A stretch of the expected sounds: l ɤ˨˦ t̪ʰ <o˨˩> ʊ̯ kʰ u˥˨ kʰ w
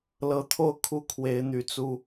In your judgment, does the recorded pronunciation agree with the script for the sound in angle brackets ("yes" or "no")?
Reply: no